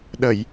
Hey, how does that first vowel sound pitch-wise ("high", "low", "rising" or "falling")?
low